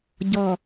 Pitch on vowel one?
low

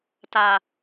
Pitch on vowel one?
low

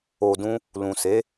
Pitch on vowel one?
low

